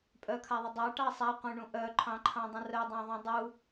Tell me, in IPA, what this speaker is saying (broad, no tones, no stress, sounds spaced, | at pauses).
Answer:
pʼ œ kʰ a ðˤ ə dˤ ɑ ʈ ɑ sˤ a qʷ œ̃ ɳ ũ ʔ œ ǃʰ ɑ̃ ǃʰ ɑ̃ dˤ ə̃ r œ dˤ ɑ̃ ðˤ œ̃ dˤ u